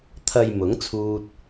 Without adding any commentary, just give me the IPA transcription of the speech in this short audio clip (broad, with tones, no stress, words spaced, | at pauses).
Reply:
t̪ʰɐ˨j mʊ˨˥ŋt͡sʰuː˧t̚